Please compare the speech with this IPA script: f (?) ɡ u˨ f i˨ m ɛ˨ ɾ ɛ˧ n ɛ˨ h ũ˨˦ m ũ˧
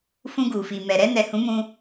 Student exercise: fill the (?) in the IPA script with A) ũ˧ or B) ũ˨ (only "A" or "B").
A